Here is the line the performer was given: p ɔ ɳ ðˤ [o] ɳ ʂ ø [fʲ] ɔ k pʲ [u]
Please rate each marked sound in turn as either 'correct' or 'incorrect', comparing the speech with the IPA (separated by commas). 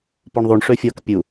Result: incorrect, correct, correct